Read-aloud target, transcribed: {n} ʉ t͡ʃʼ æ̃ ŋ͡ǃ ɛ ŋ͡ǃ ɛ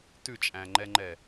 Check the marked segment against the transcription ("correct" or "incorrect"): incorrect